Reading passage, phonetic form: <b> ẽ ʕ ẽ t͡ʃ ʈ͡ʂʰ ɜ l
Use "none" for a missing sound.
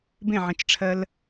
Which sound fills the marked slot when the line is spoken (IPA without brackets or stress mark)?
b